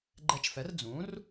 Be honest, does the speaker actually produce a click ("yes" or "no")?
yes